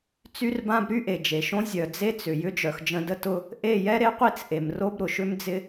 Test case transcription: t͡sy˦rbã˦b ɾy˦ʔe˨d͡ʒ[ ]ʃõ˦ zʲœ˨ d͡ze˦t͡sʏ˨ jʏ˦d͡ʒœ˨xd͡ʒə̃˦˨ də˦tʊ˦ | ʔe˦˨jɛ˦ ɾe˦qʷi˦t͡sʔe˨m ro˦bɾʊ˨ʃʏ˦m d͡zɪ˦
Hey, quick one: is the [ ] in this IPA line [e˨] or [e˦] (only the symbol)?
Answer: e˨